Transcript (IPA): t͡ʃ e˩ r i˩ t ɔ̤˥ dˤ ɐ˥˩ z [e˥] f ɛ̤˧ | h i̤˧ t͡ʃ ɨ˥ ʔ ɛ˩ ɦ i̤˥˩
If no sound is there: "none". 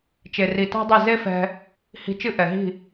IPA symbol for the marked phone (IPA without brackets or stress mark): e˥